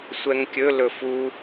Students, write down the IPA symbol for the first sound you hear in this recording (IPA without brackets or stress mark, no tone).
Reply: sʷ